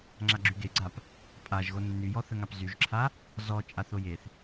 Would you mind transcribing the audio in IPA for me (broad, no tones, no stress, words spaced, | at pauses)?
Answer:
ŋ͡ǁaɡ͡ǁyɡeɡ͡ǀap | pʼaʒɣo nːyjɔθəŋap zyʒǁʰa | zɔ t͡ʃʼaθojeθ